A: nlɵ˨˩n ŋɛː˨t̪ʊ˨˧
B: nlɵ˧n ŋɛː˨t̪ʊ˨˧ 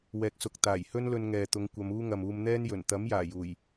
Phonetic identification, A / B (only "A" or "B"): B